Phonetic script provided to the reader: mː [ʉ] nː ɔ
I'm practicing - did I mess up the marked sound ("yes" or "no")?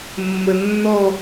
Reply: yes